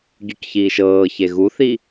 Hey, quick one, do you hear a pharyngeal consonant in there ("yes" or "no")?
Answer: no